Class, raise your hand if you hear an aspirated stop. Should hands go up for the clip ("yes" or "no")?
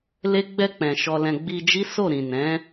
no